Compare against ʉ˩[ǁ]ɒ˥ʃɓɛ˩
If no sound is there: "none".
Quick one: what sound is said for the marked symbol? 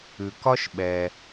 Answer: k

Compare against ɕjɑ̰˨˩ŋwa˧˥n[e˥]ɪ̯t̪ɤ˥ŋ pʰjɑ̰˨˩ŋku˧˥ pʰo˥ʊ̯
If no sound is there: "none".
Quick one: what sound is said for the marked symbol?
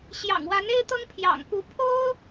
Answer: e˥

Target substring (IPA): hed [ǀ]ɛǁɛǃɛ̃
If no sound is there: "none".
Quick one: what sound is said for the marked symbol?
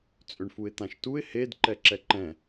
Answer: ǃ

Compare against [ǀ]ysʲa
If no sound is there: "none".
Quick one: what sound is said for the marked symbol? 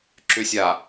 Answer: ǁ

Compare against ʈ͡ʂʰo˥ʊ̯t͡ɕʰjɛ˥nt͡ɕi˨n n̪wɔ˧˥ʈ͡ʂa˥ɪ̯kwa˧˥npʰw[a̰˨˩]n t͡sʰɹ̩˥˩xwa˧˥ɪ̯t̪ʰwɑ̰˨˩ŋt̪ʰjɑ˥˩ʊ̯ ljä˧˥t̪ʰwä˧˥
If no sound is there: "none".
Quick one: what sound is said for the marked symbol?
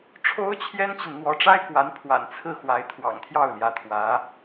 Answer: a̰˨˩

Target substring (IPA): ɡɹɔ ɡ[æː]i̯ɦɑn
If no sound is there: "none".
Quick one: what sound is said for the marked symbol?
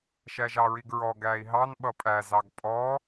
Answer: æː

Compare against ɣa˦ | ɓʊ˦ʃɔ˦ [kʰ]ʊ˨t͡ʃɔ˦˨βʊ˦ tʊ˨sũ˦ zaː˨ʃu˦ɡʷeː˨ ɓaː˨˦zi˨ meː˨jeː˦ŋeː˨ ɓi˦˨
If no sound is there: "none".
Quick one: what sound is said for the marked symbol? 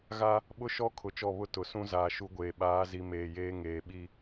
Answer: kʰ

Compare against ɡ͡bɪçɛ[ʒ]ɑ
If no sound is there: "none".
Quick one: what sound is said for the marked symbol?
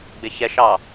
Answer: ʃ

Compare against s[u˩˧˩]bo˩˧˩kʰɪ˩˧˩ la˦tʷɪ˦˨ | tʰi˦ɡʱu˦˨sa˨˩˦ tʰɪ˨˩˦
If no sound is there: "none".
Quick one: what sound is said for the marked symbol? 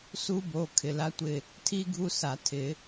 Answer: u˦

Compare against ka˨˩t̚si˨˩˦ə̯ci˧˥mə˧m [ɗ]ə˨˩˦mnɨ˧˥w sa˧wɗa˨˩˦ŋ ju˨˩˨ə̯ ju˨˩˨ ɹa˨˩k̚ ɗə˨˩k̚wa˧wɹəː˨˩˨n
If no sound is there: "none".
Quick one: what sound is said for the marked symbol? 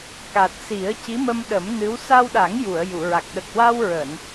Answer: ɗ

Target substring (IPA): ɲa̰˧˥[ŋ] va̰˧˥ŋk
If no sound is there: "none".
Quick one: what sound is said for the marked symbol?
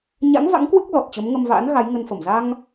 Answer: ŋ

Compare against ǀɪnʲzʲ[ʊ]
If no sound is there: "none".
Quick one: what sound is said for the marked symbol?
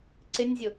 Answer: ʊ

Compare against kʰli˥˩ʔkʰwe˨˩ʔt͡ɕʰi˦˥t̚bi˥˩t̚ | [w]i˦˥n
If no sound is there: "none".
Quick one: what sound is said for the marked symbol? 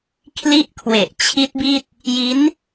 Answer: j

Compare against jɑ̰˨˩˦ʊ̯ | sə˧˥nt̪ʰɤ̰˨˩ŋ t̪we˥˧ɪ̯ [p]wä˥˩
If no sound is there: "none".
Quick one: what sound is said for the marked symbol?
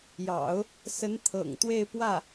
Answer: p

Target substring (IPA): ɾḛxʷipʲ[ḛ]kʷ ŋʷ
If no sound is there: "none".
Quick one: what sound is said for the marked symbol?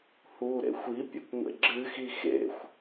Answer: ḛ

